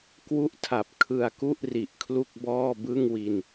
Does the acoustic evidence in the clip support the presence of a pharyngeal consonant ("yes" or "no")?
no